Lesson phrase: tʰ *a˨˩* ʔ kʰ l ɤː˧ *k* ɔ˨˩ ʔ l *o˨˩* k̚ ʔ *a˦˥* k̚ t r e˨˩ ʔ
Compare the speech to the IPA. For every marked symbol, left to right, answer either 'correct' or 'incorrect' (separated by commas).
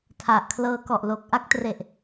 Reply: correct, correct, correct, correct